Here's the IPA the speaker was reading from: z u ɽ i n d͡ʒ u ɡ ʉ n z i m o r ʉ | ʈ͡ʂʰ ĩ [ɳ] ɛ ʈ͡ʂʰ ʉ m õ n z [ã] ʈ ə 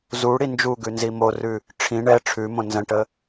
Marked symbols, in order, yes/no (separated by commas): yes, no